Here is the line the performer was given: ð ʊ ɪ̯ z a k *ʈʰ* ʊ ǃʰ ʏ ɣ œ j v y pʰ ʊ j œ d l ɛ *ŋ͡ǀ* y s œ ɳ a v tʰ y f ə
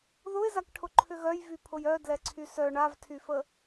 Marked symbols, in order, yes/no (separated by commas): yes, no